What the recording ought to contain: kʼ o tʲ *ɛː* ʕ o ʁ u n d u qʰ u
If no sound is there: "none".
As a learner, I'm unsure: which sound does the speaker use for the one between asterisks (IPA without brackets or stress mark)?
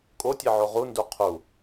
ɛ